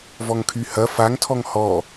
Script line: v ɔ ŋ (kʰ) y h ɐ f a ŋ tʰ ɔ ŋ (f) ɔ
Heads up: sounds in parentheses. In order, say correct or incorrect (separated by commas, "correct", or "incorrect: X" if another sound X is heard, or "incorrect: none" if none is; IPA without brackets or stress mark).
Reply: correct, incorrect: h